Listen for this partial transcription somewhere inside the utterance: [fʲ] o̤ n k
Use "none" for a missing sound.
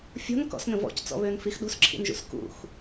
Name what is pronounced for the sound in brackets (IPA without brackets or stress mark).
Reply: fʲ